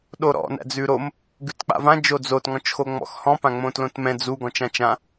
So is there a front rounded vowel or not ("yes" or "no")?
no